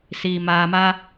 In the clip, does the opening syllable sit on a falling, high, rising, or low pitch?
low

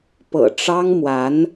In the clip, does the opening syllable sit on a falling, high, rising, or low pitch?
low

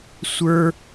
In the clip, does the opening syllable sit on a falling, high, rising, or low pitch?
high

